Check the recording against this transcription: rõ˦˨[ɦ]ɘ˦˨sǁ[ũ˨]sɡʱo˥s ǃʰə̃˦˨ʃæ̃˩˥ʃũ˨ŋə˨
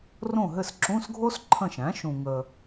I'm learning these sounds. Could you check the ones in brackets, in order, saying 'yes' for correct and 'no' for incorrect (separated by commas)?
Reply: yes, no